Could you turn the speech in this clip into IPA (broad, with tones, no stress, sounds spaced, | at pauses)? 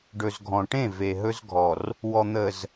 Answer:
ɖ ɵ˨ z ɡʱ ɔ̃˨ ʈ ẽ˦˨ v e˨ ɦ ɵ˦ z ɡʱ ɔ˨ r | w ɔ˨ n̪ ə˨ z